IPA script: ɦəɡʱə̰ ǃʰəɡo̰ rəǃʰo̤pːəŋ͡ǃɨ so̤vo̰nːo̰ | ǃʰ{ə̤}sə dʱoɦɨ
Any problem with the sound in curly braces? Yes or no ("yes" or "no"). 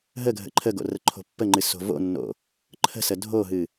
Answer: no